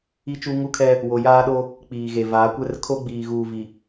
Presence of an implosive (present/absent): present